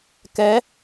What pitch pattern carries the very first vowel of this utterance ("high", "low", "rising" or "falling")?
rising